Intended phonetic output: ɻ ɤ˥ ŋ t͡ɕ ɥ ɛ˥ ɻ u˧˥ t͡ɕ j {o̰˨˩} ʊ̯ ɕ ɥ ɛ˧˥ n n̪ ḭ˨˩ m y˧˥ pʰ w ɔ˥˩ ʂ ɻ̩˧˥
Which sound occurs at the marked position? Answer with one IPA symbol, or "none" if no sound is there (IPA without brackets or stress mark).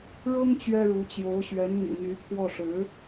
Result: o˧˥